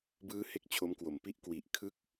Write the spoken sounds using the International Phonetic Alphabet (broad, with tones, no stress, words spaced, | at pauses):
bɯː˦˥ he˥˩k̚t͡ɕʰo˦˥mkwo˨˩m pi˦˥ʔkwi˨˩ʔ kʰɯ˦˥k̚